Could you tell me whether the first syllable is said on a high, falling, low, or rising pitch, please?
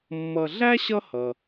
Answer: low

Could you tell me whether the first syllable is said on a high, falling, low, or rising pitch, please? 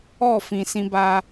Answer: falling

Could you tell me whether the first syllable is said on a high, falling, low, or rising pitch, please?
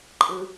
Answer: low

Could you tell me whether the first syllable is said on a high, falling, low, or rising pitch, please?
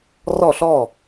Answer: falling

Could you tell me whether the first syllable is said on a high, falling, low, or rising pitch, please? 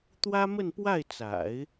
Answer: high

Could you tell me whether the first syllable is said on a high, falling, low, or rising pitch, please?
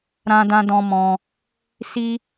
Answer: high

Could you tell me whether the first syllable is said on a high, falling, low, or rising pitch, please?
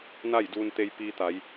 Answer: falling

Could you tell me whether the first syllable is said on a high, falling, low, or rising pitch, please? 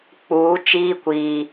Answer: rising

